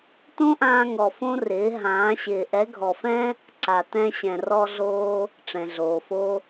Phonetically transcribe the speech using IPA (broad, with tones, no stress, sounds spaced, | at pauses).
t õ˦ ʔ ãː˧ ŋ ɔ˨ f õ˦ r ɪː˨˦ ɦ ãː˨˦ ɕ ɪː˨ ʔ ɛ˨˦ ɡʱ ɔ˨ f ɛ̃˦ | ǀ a˨ t ɛ̃˧ ɕ ɛ̃˨ r ɔ˧ ɮ oː˧ | ʈ͡ʂ ɛ̃˨ ɮ oː˨ f o˦